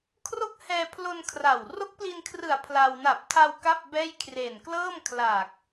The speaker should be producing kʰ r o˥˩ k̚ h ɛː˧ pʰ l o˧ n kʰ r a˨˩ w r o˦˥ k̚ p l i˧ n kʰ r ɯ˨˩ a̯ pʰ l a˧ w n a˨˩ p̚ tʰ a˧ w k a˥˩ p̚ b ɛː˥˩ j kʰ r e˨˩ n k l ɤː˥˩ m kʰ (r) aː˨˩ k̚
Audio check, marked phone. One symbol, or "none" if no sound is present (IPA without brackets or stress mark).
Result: l